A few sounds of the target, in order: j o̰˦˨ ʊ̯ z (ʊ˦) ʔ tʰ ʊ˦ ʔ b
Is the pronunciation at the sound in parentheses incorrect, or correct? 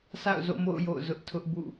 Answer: correct